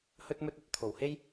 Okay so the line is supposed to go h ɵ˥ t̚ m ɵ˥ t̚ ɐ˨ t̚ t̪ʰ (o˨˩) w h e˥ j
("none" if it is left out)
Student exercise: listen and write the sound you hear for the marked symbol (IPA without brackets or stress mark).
o˨˩